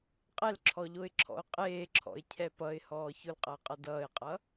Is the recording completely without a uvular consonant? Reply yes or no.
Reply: no